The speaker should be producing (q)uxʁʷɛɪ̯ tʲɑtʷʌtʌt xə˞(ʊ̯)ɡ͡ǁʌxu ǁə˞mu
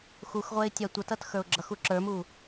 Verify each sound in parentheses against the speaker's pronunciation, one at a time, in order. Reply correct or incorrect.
incorrect: x, correct

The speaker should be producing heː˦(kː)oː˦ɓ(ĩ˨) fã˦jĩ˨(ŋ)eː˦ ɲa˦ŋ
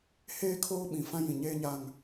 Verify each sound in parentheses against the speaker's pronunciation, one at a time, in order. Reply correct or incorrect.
incorrect: kʰ, correct, incorrect: ɲ

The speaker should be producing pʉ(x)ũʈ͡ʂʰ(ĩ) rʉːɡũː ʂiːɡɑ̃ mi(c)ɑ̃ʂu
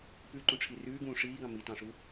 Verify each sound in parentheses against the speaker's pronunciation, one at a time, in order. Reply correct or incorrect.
incorrect: ǃ, incorrect: i, incorrect: t

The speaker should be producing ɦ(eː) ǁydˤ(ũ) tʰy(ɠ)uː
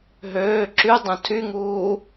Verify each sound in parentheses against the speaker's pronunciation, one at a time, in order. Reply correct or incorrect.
incorrect: øː, correct, incorrect: ŋ

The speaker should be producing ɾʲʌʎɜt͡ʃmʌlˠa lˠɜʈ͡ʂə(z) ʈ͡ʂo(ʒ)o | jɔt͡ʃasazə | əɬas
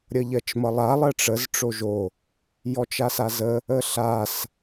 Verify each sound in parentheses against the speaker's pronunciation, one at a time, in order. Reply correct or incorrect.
correct, correct

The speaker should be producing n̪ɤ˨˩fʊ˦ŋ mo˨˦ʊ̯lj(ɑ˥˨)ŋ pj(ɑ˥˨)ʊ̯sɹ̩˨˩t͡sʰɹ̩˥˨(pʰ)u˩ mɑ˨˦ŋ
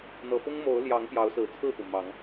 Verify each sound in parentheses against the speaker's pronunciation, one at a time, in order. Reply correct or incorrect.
incorrect: ɑ˨˦, incorrect: ɑ˨˦, incorrect: p

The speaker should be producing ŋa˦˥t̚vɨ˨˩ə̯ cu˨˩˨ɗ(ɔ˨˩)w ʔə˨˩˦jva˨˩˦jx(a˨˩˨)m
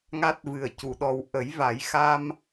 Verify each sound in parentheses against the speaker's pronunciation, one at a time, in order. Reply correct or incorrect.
correct, incorrect: a˧

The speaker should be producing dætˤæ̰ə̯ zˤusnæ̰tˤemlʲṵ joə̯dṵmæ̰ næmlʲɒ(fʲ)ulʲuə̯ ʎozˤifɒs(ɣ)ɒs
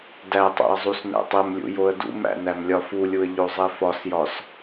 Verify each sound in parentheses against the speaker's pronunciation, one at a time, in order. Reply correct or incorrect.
incorrect: f, incorrect: j

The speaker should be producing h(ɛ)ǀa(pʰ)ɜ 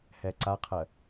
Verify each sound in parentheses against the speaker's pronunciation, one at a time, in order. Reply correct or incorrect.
correct, incorrect: qʰ

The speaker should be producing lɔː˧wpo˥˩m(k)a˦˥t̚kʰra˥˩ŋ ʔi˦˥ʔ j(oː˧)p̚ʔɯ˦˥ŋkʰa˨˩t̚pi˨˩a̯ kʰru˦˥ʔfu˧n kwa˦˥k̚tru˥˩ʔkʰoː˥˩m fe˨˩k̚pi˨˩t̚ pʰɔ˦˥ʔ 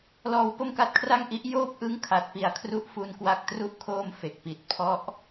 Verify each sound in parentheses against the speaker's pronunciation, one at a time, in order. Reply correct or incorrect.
correct, incorrect: oː˥˩

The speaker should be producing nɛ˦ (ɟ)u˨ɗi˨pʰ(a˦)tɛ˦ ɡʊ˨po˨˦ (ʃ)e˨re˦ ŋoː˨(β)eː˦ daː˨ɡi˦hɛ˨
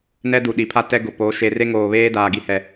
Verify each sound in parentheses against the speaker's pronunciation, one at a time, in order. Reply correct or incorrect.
incorrect: d, correct, correct, correct

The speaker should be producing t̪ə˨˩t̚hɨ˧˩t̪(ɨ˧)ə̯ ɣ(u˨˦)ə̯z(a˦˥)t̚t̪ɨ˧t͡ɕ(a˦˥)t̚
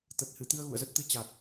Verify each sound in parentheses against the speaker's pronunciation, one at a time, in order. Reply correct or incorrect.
correct, incorrect: ṵ˧˨, incorrect: ə˦˥, incorrect: a˨˩

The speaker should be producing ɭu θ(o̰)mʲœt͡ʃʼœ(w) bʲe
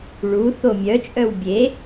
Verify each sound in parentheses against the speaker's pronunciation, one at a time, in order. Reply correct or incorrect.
incorrect: o, correct

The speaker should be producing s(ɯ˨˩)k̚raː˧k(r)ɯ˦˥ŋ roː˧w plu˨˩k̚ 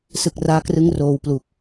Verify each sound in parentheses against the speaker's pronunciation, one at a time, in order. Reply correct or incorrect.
correct, correct

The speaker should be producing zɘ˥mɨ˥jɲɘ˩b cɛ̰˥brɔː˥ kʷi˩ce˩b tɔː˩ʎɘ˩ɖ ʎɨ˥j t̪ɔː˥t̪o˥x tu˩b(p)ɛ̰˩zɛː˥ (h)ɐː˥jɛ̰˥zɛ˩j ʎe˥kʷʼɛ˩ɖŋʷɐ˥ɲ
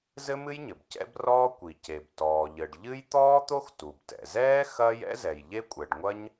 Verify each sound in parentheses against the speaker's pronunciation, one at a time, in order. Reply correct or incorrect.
incorrect: t, incorrect: x

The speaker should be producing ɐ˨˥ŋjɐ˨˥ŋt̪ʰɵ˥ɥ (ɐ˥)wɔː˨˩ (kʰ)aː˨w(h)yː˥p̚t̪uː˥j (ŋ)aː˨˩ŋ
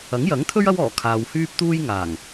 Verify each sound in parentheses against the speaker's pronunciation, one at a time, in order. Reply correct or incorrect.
correct, correct, correct, correct

